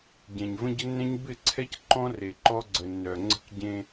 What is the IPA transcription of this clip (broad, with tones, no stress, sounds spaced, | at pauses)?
ɟ ɛ̃˨ ɲ v ə̃˦ ɟ ə˦ nː ɛ̃˦ ɲ b ɪ˦˨ ǀʰ ɛ˦ c ǃ ɔ̃˦ r e˨ ǃ ɔ˦ ɡ͡ǀ ə˨ nː œ˨ ŋ͡ǀ ə̤˦ k ɟ ẽ˦